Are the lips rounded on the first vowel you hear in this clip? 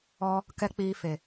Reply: yes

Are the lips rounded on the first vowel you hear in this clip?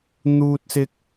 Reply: yes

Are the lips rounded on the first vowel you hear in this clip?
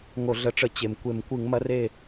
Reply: yes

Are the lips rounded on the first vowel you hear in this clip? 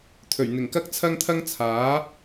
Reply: yes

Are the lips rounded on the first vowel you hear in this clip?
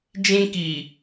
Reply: no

